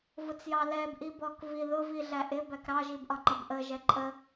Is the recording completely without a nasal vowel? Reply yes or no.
yes